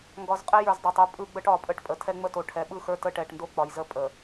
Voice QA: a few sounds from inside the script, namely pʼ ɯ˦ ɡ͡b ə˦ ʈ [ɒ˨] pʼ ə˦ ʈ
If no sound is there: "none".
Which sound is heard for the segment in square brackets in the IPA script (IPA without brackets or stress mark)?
ɒ˨